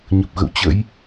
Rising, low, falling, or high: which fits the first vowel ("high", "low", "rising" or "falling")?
low